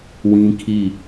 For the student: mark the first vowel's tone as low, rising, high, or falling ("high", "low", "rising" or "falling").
high